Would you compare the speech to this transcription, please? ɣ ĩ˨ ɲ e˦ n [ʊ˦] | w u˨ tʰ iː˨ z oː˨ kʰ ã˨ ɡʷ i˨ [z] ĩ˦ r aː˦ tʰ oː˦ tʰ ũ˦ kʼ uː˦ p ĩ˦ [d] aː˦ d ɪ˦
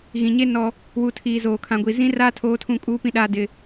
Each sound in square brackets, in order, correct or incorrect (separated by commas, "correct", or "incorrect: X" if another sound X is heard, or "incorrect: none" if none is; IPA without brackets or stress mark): incorrect: ɔ˦, correct, incorrect: ɗ